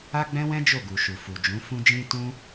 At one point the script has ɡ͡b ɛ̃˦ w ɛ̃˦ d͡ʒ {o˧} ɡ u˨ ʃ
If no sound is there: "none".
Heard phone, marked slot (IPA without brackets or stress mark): o˦˨